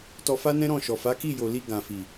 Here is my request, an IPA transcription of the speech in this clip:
tɔ˧fa˦nɛ̃˦ ɾɔ̃˦˨ʃɔ˨fa˨˦ ki˦˨jo˨ li˧ ɡã˨fi˨

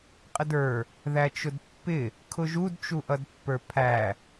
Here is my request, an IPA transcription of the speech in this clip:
qʼədə˞ | ðæt͡ʃʊdpːɪ | kʰʊʒud t͡ʃuʔʌdpːə˞pʰæ

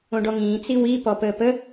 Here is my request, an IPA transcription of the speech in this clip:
õɖɔŋĩː t͡siwi pɔpəːpə

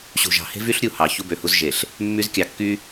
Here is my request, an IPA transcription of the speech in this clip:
ɕṳ˨ʒɑ̤˨ he̤˦vy˦ɬɾʲu˨ hɑ˨ çu˦bø˨hu˦z ʒe˨ɬ | mːy˦zkʲɑ˨kːy˦

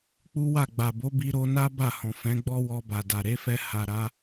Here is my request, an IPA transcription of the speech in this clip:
k͡pu˦wa˦˨ ɡ͡ba˨bo˨˦ bi˧ɾo˧na˦ ba˦˨hɔ̃˨fɛ̃˨˦ ɡ͡bɔ˦wɔ˧ba˨da˨ ɾe˨˦fɛ˧ha˨ɾa˨˦

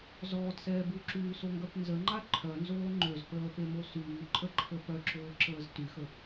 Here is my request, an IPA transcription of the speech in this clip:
zɔːtsɛː buǁyːsoŋɡœp nzəŋ͡ǃa ǃʰœnzoː ŋ͡ǃøzpəːpemo syːǃʼəǃʰə pœǁoːǁəːz tyxə

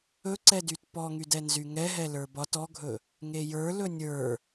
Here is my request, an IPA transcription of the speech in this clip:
ɵǀɛdyt pɔŋydɛ nzyŋɛɦɛ lə˞bɒt ɔɡʱɵ | ŋejə˞ lɵnʲə˞

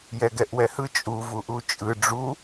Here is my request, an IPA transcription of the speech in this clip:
jɛɡɛʔwɛhɯ t͡ʃʼu vuʔut͡ʃʼɯ ɖ͡ʐu

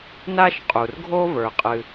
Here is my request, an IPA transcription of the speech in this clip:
na˥ʃqʼu˩rɡʱo˥və˞˩ qʼɨ˩

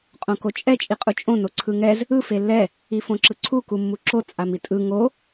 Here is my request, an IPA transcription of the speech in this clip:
qʼõkot͡ʃʼɛ t͡ʃʼiqʼut͡ʃʼõ noǀʰɯŋɛz | ɯ felːɛ | ifõǁɯǀʰu kumːuǁo t͡sʼamitʼɯ ŋo

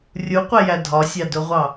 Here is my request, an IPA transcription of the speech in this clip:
rʲuqʷɛjæ dʱɒsʲɑdʊʁʷɑ

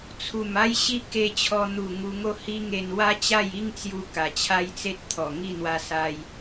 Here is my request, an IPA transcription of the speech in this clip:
t͡sʰu˨˩ma˦jɕi˦ ke˧t͡ɕʰɔ˧ n̪u˨˩ ŋu˧ŋo˦ hi˦ŋe˧n wa˦t͡ɕa˥˧ji˦ŋt͡sju˧ ka˨˩t͡ɕʰa˦jt͡se˦t̚t̪ʰɔ˨˩ ŋi˥˧n̪wa˧sa˧j

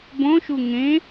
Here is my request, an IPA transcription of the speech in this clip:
bõʃu ŋẽ

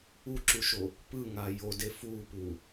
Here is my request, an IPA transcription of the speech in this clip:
uǁuʃo | pɯŋa jode fupu

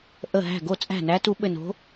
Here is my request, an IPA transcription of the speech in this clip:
ʔə˧˩ɦæ̤˧˩ɡo˧˩t͡sʼæ̤˧˩ næ˨˥tu˨˥ɓɘ˧˩ no̤˨˥

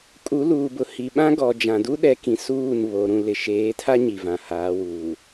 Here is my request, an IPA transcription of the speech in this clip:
kʼu˨˦luː˨bʊ˨ hi˨ɓã˦ɡɔ˨ d͡ʒã˨du˦ɗɛ˨˦kĩ˨ suː˦˨n βo˨ ɾũ˨lɪ˨ʃeː˨˦tʰa˦ ɲi˨vã˨haː˨˦ wuː˨

